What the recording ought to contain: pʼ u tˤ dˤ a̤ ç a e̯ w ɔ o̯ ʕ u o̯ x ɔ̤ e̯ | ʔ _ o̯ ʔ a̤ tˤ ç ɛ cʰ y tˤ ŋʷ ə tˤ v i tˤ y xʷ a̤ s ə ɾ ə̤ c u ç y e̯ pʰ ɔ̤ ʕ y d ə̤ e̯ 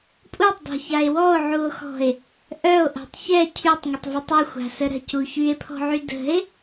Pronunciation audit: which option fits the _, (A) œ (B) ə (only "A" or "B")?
A